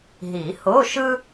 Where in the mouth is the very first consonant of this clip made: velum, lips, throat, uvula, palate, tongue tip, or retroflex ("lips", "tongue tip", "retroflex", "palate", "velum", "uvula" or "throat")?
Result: throat